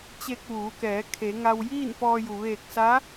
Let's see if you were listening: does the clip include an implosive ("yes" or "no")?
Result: no